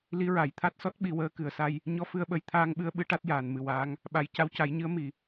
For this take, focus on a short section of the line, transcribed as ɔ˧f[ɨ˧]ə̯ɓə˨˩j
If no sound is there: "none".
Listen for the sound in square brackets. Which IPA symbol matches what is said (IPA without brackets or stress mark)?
ɨ˧